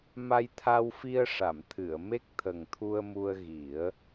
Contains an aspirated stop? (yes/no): yes